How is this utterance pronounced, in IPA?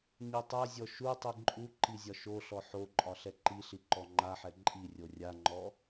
ɲ i tˤ ɛ zʲ ɔ ʃ u tˤ i ǃʼ u ǃ i zʲ ɒ ʃ o ɬ ɔ ħ o ǃʼ ɒ ɬ ɛ ǃ i ɬ i ǃ ɔ ŋ͡ǃ a ħ ɛ ǃʼ i rʲ o rʲ a ŋ͡ǃ ɔ

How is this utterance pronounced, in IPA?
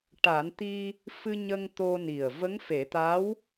ʈ a˨˩˦ n t̪ i˧ | f ɨ˧ ɲ ə˧ ŋ t̪ o˧ n i˨˩ ə̯ v ə˧˥ ŋ f e˨˩˦ t̪ a˧˥ w

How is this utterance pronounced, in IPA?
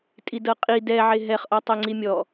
tʼ i d ɤ qʼ i d ɛ ʕ e ɦ ɛ χ ʔ ɔ tˤ ɛ ŋ͡ǀ i mʲ ɔ

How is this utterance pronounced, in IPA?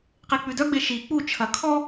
q e k͡p ʉ d œ ɡ͡b e ʃ i k͡p u t͡ʃʰ ɐ kʰ ɔ

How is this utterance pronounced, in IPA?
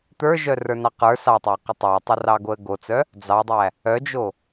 t̪ ə˞ ʒ œ r ə˞ n ɑ q ə˞ s ɑ tˤ æ q ə tˤ ɑ tˤ o r ɑ ɡ o ə̯ ɡ o t͡s œ | d͡z ɑ dˤ æ | œ d͡ʒ o

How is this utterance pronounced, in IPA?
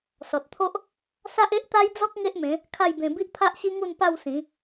s ɔ˨ t̚ t̪ʰ o˦ ʔ | s a˦ ʔ e˦ ʔ t̪ a˦ j d͡z ɔ˦ k̚ ŋ e˦ ʔ m ẽ˨˦ | kʰ a˥˧ j b ẽ˧ b i˦ ʔ pʰ a˦ ʔ ɕ i˦ ŋ u˥˧ n p a˥˧ w s ĩ˨˦

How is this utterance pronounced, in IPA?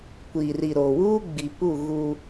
kʷ iː˨ r i˨ ɾ o˨ w uː˦ ɡ͡b i˨ p u˦˨ ɣ u˦

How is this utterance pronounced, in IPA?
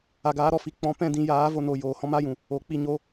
a˨ ɡ aː˨˦ ɾ ɔ˨ f i˨ k͡p ɔ̃˨˦ p ɛ̃˧ d ĩ˨ j aː˨˦ v o˧ n o˨ j oː˨ h ɔ̃˦ m a˦ j ũ˨ | o˨ k͡p i˧ ɲ o˨˦

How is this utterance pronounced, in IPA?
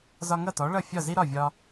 z ɒ˧ ŋ ʌ˥˩ t ɔ˩˥ ɭ ʌ˥˩ fʲ ɒ˥˩ z i˥ ɾ ɒ˥˩ vʲ ɒ˧

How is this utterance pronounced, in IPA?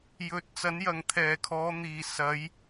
j ɵ˨˥ t̚ t͡s ɐ˨˥ n j ɐ˨ ŋ t̪ʰ ɛː˨˩ kʰ ɔː˨˧ n̪ iː˨˩ s ɐ˨˧ j

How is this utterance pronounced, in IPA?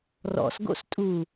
r ɔ̰ s ɡ o̰ s tʼ u

